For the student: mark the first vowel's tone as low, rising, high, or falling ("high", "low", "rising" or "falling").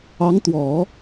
rising